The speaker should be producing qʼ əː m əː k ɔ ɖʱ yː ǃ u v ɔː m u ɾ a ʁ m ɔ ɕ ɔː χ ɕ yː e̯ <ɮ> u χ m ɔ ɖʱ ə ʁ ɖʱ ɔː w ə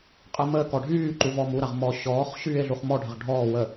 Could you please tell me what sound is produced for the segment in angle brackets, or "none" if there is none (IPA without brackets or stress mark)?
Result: ɮ